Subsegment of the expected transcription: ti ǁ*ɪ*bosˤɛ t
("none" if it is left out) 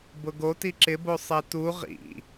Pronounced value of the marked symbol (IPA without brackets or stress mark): ɪ